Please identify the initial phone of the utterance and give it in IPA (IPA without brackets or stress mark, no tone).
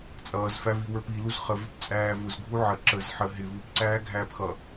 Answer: t͡sʼ